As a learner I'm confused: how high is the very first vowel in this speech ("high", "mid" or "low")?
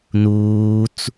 high